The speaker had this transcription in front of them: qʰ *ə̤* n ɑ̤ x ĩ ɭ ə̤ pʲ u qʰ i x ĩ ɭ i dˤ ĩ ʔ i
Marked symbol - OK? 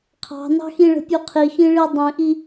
no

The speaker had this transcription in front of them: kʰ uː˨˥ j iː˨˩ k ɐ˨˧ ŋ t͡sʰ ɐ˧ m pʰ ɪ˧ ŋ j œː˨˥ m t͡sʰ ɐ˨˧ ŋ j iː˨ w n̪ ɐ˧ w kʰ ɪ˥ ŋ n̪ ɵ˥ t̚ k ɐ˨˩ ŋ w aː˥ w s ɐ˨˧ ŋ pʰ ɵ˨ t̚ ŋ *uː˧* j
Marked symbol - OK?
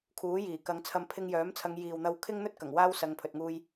yes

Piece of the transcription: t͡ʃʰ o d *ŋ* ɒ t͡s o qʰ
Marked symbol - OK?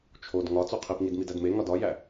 yes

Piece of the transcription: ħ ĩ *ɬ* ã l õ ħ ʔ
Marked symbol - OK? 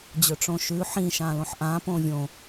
no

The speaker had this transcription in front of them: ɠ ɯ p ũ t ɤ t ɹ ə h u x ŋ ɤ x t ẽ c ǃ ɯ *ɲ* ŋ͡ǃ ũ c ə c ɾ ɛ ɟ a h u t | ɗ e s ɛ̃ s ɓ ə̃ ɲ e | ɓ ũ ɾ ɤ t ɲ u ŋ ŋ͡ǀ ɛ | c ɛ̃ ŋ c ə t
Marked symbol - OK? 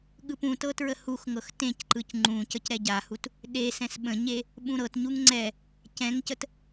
no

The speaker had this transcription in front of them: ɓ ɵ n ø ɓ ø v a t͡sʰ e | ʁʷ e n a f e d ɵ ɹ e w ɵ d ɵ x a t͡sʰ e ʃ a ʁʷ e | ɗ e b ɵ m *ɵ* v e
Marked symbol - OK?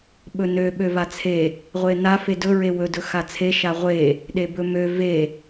no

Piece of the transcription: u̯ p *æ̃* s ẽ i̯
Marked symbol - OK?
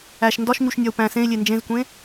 yes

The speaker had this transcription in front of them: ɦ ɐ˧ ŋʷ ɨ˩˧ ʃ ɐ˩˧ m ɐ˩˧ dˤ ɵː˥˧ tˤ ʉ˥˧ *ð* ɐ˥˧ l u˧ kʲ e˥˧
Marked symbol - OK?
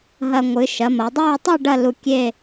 no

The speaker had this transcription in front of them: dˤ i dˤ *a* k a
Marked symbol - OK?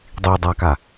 yes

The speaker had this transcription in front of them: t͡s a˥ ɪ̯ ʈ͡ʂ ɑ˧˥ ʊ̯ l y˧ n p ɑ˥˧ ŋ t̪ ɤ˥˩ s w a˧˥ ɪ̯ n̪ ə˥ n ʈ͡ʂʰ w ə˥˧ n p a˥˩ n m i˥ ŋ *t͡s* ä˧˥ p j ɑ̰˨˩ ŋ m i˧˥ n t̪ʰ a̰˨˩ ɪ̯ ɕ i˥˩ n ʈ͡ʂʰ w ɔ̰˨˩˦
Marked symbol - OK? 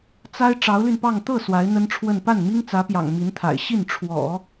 yes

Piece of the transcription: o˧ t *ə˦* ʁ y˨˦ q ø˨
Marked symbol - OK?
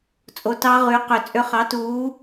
no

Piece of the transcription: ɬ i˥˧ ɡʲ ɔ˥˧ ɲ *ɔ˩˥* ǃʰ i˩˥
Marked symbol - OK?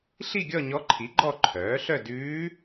no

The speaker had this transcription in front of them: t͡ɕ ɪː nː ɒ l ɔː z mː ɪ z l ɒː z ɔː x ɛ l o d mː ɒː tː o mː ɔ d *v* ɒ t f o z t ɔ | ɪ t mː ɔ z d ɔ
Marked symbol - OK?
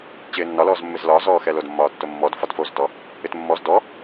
no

